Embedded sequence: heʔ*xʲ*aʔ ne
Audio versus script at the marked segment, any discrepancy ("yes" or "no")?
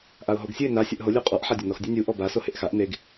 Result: yes